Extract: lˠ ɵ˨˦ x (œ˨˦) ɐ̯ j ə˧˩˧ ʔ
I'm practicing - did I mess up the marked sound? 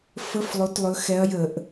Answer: yes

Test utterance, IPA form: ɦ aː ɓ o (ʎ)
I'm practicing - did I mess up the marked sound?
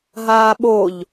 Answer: no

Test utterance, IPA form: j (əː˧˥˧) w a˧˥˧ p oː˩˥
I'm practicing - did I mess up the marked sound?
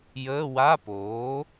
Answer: no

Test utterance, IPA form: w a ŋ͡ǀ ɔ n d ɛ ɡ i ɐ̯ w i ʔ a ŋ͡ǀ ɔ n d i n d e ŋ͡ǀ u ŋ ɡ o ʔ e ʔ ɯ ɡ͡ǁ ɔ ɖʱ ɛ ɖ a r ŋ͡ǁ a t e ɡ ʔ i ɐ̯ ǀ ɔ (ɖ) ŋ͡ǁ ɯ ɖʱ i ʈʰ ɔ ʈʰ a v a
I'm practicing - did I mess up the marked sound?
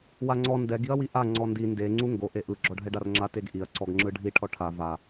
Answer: yes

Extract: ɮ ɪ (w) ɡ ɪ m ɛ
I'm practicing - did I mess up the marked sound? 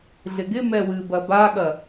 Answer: yes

